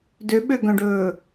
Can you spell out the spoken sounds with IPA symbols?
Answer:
døɓøɡœ̃ɖɵː

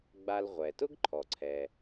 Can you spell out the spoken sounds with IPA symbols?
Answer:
ɡ͡ba˧lʁʷɛ˩ tʊ˥ɡǃʰɔ˩ǀʰɛ˩

